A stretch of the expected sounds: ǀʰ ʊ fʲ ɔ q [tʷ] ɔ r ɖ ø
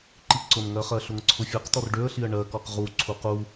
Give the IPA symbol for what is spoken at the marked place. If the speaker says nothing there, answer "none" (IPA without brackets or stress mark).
t̪